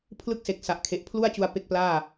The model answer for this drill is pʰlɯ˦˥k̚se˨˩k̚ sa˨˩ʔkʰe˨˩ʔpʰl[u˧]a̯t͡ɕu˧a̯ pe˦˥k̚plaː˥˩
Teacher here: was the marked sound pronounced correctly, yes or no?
no